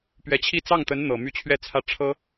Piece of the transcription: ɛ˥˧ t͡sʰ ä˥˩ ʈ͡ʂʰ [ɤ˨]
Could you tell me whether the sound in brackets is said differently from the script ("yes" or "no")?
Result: yes